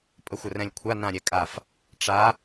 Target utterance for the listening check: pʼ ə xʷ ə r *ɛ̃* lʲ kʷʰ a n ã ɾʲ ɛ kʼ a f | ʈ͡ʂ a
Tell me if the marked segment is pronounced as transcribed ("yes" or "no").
yes